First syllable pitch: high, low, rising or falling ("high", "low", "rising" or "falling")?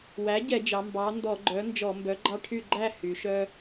rising